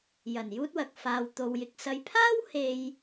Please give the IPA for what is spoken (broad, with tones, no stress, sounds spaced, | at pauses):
j ɐ˨˩ n j uː˥ t̚ w ɐ˨ k̚ f aː˨ w t̪ o˨ w j ɪ˨ k̚ s ɐ˨ j pʰ aː˥ w h e˨ j